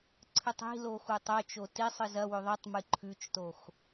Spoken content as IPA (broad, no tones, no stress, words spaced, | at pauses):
ǀʰɨtˤi̤lo xutˤɵt͡ʃo ti sˤɨzɐwɵ ðˤɨtˤmɨ ǃʰʉt͡ʃtox